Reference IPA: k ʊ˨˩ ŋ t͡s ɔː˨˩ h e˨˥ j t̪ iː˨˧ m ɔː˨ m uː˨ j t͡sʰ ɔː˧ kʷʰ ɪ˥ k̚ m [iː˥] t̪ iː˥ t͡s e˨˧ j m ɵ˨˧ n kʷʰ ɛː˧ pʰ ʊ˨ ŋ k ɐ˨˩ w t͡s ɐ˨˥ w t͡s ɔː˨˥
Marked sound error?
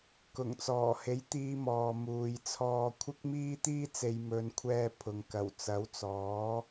no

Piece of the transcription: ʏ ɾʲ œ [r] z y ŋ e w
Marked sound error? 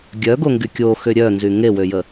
yes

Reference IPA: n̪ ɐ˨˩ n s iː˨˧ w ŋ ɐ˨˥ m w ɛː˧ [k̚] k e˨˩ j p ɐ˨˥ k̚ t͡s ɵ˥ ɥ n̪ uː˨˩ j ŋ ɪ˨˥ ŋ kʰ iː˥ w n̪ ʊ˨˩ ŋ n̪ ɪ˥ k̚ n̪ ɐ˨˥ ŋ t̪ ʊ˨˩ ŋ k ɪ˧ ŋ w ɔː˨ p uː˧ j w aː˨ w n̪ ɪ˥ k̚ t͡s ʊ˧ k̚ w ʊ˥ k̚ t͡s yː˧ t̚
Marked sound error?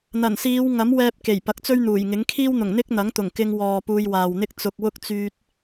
yes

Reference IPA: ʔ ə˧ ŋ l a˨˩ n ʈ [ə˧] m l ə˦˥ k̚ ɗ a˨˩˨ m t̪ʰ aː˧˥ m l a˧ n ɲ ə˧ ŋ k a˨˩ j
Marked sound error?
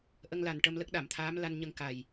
no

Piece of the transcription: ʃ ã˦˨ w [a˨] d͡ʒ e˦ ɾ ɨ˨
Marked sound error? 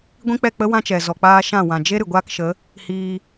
yes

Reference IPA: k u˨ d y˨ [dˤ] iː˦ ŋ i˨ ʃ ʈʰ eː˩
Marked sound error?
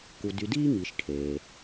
yes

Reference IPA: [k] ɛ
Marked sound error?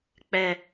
yes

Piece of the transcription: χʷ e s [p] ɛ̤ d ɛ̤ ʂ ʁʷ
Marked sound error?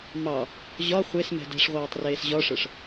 yes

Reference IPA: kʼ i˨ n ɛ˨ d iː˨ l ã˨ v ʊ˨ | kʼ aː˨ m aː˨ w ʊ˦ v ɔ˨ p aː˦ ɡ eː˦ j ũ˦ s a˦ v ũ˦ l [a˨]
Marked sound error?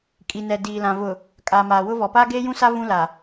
no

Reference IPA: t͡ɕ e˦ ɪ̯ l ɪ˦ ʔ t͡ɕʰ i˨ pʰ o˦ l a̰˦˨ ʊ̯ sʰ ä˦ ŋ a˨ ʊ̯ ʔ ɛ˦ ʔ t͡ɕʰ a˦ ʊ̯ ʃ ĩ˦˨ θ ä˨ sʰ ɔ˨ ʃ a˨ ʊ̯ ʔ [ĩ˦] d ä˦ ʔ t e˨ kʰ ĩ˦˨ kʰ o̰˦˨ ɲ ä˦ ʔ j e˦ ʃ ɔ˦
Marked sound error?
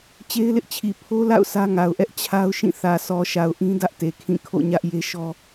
no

